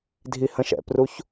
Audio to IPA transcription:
dʱ i h ə̃ ʃ ɛ̰ p r u ç

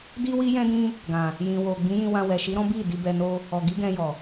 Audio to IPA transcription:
d i˦ w i˦ j ɛ̃˦ d ĩ˦ | ɡ ã˨ | j ĩ˨ w o˨ ɡ͡b ĩ˨˦ j ĩ˧ w ã˧ w ɛ˨ ʃ i˨˦ ɾ ɔ̃˦ b i˦˨ d i˧ b ɛ˧ n o˦ | ɔ˨ ɡ i˨˦ ɡ ɛ̃˧ j ɔ˨

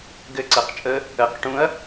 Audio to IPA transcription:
ɡ ɘ ǀ ɜ q t͡ʃʼ ə | ə q ʈ ũ ɐ̯

